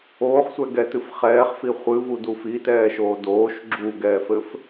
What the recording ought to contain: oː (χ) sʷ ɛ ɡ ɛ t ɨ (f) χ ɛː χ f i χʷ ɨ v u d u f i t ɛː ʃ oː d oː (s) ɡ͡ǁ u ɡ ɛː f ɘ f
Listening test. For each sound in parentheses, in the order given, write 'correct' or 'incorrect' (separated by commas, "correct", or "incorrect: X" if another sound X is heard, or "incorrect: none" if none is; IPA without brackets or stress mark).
correct, correct, incorrect: ʃ